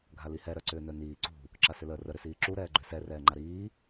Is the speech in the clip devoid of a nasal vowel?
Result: yes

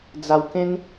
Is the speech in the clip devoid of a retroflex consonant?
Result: yes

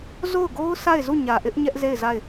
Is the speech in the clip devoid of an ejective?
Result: yes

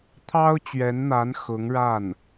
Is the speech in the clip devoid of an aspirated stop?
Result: no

